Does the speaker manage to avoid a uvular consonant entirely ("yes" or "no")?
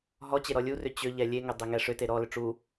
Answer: yes